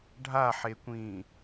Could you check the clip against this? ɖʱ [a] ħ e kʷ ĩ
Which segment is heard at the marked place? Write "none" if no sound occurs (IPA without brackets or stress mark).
a